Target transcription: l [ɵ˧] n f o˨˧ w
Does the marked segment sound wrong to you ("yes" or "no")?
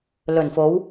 yes